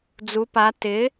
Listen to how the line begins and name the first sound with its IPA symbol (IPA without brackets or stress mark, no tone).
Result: d͡z